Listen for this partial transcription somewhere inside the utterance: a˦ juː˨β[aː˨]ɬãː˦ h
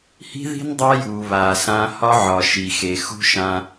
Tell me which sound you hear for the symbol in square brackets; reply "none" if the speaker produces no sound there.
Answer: aː˨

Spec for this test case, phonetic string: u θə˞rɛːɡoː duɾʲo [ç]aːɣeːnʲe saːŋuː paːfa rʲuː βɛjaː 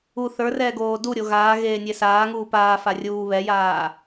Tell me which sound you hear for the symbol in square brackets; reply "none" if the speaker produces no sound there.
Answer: ɣ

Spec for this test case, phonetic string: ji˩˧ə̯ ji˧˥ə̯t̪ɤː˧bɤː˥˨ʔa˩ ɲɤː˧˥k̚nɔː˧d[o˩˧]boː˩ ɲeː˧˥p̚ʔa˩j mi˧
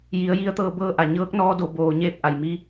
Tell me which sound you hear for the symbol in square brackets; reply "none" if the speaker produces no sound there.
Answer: o˩˧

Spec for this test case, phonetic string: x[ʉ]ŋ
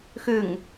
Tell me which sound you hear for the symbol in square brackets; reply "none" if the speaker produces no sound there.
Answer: ʉ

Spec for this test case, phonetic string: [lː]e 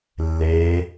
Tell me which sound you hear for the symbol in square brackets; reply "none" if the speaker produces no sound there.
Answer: lː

